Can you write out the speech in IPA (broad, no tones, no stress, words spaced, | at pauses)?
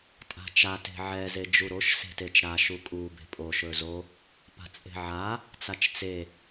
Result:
tʼa̤t͡ʃa te̤ʕɛ zed͡ʒuɾoʃ se̤tet͡ʃɾa ʃukʼu be̤pʼo ʃɵzo | pa̤t͡sʼe̤ʕa | t͡sat͡ʃt͡se